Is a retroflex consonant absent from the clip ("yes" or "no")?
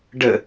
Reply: no